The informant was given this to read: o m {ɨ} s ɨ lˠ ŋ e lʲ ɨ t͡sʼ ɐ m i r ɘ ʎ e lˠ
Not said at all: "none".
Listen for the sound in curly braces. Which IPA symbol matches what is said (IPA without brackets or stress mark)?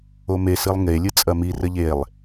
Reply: e